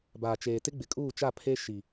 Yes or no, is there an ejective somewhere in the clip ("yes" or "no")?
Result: yes